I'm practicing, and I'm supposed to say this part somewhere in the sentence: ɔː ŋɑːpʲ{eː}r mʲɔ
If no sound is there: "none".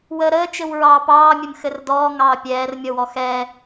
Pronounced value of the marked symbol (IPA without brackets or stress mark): ɛː